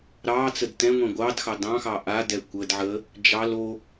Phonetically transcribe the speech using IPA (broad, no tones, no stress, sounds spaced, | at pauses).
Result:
ɾ ɑ t͡s ə d t ɛ̃ ŋʷ ɛ̃ ɡʷ ɑ d x ɑ d ɑ̃ x ɑ ʔ a d ɛ kʷ ə d ʕ ə | d͡ʒ ɑ l o